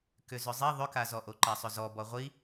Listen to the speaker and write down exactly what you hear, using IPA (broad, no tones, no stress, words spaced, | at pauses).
kʏzʏzˤi ðˤʏkazɔʔo ǃasˤʏzɔ bɔʁʷi